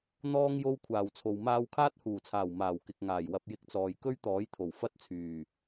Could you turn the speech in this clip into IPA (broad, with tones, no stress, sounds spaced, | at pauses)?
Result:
n̪ ɔː˧ ŋ j o˧ w kʷʰ aː˨ w t͡sʰ o˨ w m aː˧ w kʰ aː˥ t̚ h uː˨˩ t͡sʰ aː˨˩ w m aː˨˩ w k ɪ˨ k̚ ŋ aː˨˩ j w ɐ˧ p̚ j ɪ˧ k̚ t͡s ɔː˨ j k ɵ˥ ɥ t̪ ɔː˨˥ j t̪ʰ o˨˩ w f ɐ˥ t̚ t͡sʰ yː˨˩